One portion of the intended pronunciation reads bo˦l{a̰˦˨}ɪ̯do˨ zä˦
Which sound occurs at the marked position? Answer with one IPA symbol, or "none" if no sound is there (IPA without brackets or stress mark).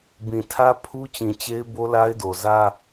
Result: a˦